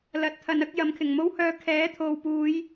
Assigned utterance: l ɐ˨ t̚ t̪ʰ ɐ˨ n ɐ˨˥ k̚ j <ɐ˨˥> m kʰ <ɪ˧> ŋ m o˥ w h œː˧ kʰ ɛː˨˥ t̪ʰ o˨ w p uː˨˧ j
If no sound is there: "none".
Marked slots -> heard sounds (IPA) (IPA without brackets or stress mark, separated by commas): ɐ˨˧, ɪ˨˩